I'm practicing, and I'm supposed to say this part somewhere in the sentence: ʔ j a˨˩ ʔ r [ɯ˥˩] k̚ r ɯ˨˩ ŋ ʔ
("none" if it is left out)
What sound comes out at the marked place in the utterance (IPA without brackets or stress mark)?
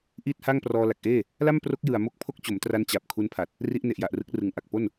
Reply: ɯ˦˥